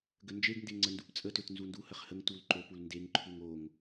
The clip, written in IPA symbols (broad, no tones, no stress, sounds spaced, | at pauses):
ɡ ə n d͡ʒ e ɡ n d e ŋ͡ǀ ə n d u p t͡sʼ ə t ø t n z u n d u h ə χ h ə ŋ t u l ǃ o p u l n d e ŋ ǃʰ u ŋ o ŋ